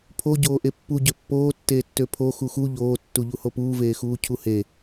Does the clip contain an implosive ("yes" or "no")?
no